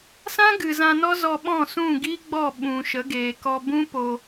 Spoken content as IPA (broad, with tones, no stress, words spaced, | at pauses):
sã˦ ɡɨ˨zã˧nɔ˦ zɔ˧ɓɔ̃˦˨sũ˦˨ ɡi˦ɡ͡bɔ˦˨ ɓũ˨ʃə˨˦ɡeː˨ kɔ˧bũ˦po˧